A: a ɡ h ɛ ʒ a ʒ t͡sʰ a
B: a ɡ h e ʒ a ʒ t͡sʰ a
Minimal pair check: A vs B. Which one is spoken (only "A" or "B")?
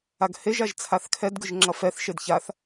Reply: B